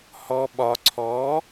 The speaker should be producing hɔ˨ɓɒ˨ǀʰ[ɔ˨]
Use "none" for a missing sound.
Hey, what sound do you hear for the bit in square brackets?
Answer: ɔ˨˦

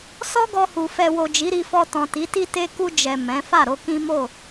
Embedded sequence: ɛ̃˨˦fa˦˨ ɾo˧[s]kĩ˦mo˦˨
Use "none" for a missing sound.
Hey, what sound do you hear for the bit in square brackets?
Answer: none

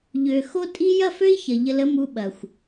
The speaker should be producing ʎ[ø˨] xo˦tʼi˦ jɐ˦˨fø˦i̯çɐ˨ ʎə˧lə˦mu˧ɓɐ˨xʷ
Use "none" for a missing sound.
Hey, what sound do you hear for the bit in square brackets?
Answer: ø˨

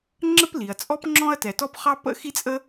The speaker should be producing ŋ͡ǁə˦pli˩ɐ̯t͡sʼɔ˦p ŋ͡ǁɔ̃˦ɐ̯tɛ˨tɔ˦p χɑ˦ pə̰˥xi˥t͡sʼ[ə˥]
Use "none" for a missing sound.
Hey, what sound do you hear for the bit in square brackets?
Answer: ə˥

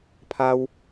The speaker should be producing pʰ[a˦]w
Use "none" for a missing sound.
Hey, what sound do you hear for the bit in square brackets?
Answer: a˦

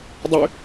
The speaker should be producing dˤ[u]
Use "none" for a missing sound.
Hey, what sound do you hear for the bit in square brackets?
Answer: y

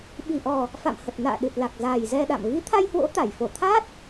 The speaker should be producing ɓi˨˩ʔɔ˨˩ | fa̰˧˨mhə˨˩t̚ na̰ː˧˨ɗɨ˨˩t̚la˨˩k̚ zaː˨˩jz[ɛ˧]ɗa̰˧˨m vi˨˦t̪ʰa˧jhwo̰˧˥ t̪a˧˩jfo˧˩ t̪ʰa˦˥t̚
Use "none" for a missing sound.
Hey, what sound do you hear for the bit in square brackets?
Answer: ɛ˧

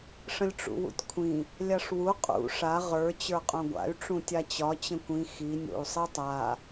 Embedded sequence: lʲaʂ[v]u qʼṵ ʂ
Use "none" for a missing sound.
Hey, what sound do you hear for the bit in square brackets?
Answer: w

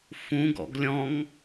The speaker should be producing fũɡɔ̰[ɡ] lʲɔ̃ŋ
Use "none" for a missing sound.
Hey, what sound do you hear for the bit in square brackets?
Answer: ɡ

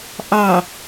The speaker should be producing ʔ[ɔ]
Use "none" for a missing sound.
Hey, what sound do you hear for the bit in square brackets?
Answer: ɑ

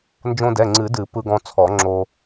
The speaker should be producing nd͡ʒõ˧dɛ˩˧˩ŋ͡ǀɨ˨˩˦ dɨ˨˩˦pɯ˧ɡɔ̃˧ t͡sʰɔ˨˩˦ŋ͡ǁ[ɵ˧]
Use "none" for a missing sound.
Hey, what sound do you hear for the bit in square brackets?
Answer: o˧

